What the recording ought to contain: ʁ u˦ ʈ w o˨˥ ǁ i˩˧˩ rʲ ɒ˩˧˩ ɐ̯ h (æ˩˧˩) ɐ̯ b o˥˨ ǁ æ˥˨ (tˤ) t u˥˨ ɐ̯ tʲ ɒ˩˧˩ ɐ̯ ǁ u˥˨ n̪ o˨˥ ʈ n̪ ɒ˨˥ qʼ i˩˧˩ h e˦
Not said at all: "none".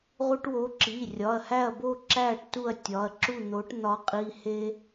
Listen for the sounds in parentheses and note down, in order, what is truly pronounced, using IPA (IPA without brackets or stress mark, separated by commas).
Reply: æ˥˨, ʈ